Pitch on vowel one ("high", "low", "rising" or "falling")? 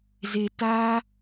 low